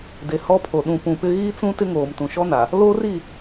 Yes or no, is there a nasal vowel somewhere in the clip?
yes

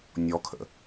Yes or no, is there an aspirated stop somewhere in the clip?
yes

